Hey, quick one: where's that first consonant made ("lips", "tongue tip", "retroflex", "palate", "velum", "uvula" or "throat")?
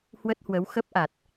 throat